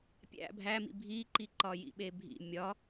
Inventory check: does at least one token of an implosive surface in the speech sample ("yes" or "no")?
yes